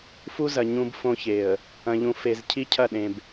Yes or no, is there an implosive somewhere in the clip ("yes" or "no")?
yes